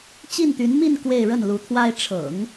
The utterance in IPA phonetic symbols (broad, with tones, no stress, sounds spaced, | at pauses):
t͡ɕ i˥˩ n t̪ y˧˥ n m i˥˧ n k w e˥˧ ɪ̯ ɻ ə˥˩ n l u˧˥ t̪ʰ w a˥ ɪ̯ ʈ͡ʂʰ ɤ̰˨˩˦ ŋ